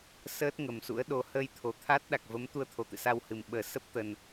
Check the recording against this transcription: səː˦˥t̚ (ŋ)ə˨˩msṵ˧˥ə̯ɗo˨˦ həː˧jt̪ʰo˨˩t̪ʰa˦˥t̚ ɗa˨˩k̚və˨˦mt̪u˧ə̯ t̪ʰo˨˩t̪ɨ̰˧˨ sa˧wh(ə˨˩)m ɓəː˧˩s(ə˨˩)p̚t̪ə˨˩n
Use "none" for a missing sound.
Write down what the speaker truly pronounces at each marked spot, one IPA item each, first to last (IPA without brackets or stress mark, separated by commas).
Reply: ŋ, ɨ˨˩, ə˦˥